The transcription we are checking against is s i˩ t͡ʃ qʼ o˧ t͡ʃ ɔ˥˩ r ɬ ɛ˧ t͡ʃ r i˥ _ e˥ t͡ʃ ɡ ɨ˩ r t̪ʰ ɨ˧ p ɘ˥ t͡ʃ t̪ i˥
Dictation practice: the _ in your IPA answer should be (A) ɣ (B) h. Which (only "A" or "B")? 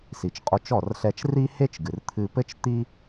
B